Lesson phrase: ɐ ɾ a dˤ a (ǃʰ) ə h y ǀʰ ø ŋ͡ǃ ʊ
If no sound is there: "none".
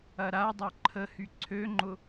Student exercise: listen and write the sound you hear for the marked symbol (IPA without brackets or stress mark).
ǃʰ